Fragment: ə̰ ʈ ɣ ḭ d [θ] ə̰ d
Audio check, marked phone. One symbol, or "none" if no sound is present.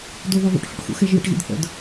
θ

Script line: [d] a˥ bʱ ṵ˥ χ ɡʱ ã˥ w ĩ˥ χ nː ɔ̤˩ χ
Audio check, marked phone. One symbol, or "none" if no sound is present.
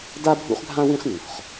d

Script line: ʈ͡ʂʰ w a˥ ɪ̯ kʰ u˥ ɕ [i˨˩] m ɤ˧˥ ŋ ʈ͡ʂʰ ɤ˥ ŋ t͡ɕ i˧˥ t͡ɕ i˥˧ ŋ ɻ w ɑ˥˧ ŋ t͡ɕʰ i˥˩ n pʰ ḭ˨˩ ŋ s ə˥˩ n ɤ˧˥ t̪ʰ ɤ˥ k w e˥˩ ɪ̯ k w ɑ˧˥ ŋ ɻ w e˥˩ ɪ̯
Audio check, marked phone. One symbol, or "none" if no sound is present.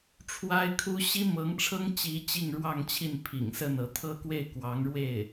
i˥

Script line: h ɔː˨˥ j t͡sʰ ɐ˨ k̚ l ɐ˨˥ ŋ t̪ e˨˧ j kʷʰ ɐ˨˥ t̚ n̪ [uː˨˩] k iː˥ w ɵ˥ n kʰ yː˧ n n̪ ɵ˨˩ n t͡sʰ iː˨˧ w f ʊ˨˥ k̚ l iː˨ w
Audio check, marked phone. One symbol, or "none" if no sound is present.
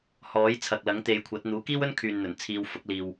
uː˨˥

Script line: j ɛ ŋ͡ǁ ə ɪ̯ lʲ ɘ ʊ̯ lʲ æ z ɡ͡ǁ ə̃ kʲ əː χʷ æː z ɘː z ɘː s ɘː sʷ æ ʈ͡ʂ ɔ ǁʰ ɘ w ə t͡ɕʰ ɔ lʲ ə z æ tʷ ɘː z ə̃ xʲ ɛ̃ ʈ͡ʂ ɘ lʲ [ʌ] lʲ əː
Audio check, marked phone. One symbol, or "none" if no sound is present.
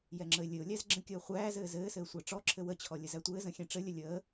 ə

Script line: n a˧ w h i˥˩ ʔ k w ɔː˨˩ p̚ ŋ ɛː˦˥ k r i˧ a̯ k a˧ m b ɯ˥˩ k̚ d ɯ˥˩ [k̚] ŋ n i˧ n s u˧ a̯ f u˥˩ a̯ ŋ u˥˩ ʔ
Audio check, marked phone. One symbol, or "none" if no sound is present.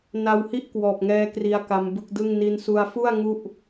none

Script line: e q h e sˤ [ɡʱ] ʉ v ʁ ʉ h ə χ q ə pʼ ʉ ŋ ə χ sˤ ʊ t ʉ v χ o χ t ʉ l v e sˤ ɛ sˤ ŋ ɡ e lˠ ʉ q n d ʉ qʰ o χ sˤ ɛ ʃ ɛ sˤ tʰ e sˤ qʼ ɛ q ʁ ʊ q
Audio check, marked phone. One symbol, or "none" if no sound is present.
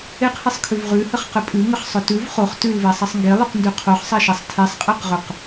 kʰ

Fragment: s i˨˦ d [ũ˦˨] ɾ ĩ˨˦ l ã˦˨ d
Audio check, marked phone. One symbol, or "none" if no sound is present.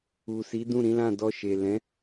ũ˦˨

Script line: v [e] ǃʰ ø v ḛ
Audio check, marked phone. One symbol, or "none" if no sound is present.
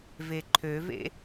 e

